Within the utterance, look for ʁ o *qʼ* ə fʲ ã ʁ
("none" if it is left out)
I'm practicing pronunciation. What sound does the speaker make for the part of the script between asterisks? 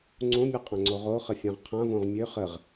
χ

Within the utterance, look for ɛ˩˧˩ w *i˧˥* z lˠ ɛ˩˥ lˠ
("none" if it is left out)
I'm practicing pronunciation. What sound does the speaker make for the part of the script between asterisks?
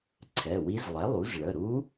i˧˥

